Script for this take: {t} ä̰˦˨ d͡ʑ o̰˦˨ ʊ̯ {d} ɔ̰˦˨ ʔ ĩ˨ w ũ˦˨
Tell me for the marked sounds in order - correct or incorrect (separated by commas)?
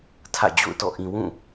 incorrect, incorrect